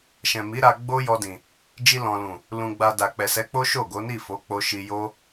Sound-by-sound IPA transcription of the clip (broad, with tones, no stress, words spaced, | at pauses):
ʃɛ̃˨mi˨˦ɾa˧ ɡ͡bo˦jɔ˧dĩ˨ | d͡ʒi˧lɔ̃˨lũ˨ | lũ˧ɡ͡ba˧ da˨k͡pɛ˨sɛ˨˦ k͡po˦ ʃo˦˨ɡo˨˦ni˦˨ fo˨˦k͡po˧ʃi˧ jo˦